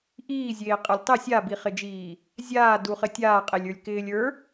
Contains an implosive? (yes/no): no